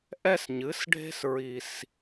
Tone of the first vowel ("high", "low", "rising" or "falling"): high